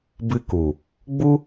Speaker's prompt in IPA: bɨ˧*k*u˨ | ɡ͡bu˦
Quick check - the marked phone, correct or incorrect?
correct